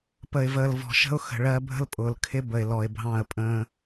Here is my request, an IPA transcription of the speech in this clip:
p ə˨ ɪ̯ v əː˨ l v ɔ̤˨ ʃ ə̤˦ ʊ̯ x ə̤˨ ɭ ɜ˦ bʱ ə̤˦ l pʼ ʊː˨ l kʰ ɪ˦ b ə˨ ɪ̯ l ɔ˨ ɪ̯ bʱ ɑ̃˦˨ ə̯ pʼ ə̃ː˦

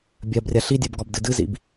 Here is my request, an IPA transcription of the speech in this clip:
bʲ ɜ b rʲ a ɬ i dʲ ɜ b ɡ ɒ b d ɨ d ɨ z ḭ b

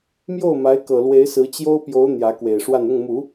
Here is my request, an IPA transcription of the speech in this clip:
m j o˥˩ ʊ̯ m a˧˥ ɪ̯ k ɤ˨˩ l w e˧˥ ɪ̯ s ɹ̩˧˥ t͡ɕ j o˥ ʊ̯ p j o˧˥ ʊ̯ n̪ j ä˧˥ k w e˨˩ ɪ̯ ʂ w a˥˧ n ʊ˥˩ ŋ m u˨˩˦

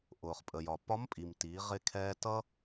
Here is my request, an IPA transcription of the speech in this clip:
ʔ ʊː˩ χ pʼ ə˩ j ɒ˩ p ɒ˧˥ m pʼ i˩ m t iː˩˧ ʁ ɪ˧ kʰ ɛː˧ t ʌ˥

